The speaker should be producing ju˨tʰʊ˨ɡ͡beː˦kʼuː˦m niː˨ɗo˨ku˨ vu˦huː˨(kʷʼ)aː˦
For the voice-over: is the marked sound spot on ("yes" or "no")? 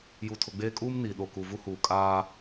no